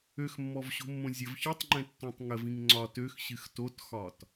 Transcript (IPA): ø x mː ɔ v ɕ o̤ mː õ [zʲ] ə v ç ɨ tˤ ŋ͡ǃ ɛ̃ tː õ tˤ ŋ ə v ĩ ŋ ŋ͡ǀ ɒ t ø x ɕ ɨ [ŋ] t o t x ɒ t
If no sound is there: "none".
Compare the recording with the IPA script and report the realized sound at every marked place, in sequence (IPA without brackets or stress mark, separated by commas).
zʲ, x